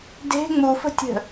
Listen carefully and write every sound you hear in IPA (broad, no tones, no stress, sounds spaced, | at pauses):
d e̤ ŋ͡m u f ə̤ tʲ ə̤